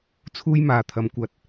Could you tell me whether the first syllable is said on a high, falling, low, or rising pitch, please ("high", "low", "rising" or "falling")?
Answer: high